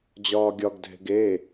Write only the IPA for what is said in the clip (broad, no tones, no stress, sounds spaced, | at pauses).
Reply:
d͡ʑ ɒː ɡʲ ɒ ɡ dʱ e̤ ɡ e